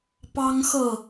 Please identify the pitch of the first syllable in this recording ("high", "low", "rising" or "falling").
high